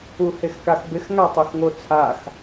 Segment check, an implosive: absent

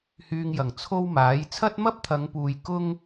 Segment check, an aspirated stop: present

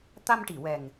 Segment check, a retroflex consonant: present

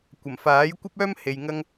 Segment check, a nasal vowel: absent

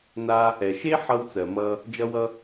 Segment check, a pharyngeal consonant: present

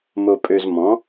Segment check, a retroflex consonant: absent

